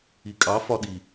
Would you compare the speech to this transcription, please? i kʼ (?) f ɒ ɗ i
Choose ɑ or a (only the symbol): ɑ